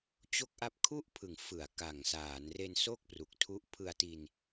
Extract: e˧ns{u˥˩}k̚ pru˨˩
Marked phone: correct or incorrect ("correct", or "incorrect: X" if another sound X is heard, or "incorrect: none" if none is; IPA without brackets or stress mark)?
incorrect: o˥˩